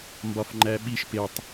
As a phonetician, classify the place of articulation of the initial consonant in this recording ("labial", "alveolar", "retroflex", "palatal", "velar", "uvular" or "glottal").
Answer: labial